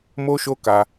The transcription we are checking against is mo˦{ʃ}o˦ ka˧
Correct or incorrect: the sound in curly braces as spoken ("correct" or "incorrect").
correct